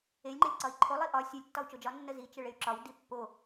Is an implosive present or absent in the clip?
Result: absent